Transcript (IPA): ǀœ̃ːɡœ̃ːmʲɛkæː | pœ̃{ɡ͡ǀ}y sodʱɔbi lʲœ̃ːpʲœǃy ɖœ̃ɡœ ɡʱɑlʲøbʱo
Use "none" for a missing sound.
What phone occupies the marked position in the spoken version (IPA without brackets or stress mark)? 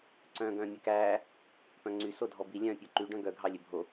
ŋ͡ǀ